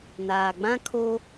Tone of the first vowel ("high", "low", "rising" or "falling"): low